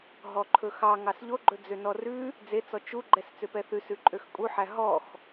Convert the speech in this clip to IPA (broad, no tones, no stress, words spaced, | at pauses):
ɦɔǃʰɵxɑ ŋɑsʎoɡ͡ǃɵ d͡zønɔrʉ | d͡zet͡sɔ t͡ʃu ɡ͡ǃɛst͡søpɛθʉs ʉǃʼøxkʼuħæ ɦɔx